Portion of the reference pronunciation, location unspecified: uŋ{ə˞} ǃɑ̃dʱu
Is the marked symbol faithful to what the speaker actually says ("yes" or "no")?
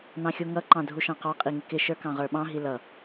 no